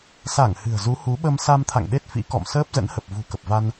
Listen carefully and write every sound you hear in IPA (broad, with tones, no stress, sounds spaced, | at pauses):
s a˧˩ ŋ h ɨ̤˨˩ ə̯ z u˨˦ h u˨˦ ɓ ə˧ m s a˧ m t̪ʰ a̰˧˨ ŋ ɗ e˦˥ t̚ f ḭ˧˥ k ɔ̰˧˨ m s əː˦˥ p̚ z ə̰˧˥ n h ə˨˩ p̚ v ṳ˨˩ k ə˨˩ p̚ v a˧ n